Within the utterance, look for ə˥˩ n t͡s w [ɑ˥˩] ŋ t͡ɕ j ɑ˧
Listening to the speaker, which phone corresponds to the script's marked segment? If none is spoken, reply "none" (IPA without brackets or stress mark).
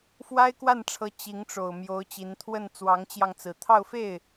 ɑ˧˥